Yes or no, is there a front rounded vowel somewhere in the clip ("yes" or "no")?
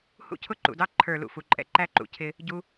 no